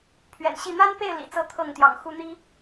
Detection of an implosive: absent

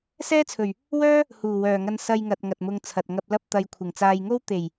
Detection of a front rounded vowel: present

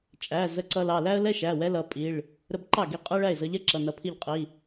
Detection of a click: present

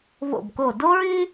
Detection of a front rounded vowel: present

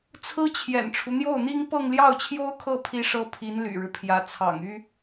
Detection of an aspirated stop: present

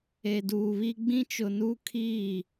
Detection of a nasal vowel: present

